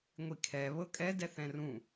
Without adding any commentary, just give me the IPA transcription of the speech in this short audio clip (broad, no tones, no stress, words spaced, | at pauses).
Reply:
ŋʷikʰɛ βɤkʼɛ dɛθɛ̃rũ